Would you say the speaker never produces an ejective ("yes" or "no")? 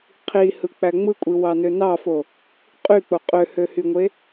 no